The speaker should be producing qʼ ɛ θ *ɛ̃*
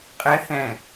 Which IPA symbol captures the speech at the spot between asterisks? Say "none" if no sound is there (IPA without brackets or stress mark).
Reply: ɛ̃